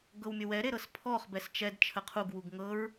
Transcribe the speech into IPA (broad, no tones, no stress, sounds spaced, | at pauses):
ɡ ɤ w mʲ ə w ɛ ɾ e ɾ ɤ s pʰ ɔ χ b ɛ s t͡ʃ ɛ d t͡ʃʰ ə qʰ u ɡ w u ɡ ŋ ɤ ɹ